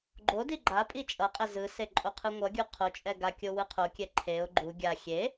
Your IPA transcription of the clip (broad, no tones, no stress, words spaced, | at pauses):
ɡ͡ǃodi ɡ͡ǃa pʼit͡ʃʼʌqʼɛ zɯse ǃʼoqʰɯŋʷʌɡʲu qʰot͡ʃʼɛ ɡakʲo wɯqʰokʲɛ ǃʰeʊ̯ ɡ͡ǃu ɡʲa xʲe